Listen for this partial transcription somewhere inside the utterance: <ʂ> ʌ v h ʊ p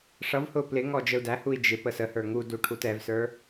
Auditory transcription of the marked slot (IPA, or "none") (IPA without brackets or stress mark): ʂ